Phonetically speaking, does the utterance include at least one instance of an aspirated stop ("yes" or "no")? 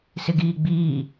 no